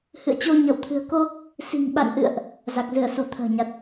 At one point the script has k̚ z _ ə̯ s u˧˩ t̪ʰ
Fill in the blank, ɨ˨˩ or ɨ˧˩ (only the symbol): ɨ˧˩